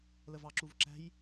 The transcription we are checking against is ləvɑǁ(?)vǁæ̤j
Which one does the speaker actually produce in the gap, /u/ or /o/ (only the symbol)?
u